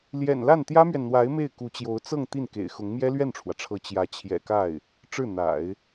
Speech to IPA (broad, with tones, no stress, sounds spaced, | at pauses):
l j ɛ̰˨˩ n l a˥˩ n t̪ j ä˥ m ɥ ɛ˨ n n̪ w a˧˥ ɪ̯ m e˥˩ ɪ̯ k u˧˥ t͡ɕ j o˧˥ ʊ̯ t͡s ɤ˥˧ ŋ t̪ i˥˩ n k ḛ˨˩ ɪ̯ x ʊ˧˥ ŋ m j ɛ˥ l ɥ ɛ˥˩ n ʈ͡ʂʰ w ä˩ ʈ͡ʂʰ ɤ˧˥ t͡ɕ j ä˧˥ t͡ɕʰ j ɛ̰˨˩ k a˥˩ ɪ̯ | ʈ͡ʂ ɻ̩˥˩ n̪ a̰˨˩˦ ɪ̯